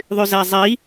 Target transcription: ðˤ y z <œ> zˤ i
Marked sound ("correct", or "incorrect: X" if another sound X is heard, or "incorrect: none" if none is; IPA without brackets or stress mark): incorrect: æ